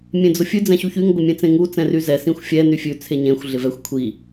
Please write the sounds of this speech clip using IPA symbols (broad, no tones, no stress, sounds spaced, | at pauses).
mʲ ẽ d͡z ʊ fʲ ʉ d͡z ɛ̃ ɕ u ç y ŋ ɡʷ ɪ mʲ ẽ t͡s ẽ ŋ u t͡s ɛ̃ r y z ɛ s ĩ xʷ fʲ ɛ n y fʲ ʉ t͡sʰ e ɲ ẽ xʷ ɮ ɪ v ɛ xʷ kʷʰ i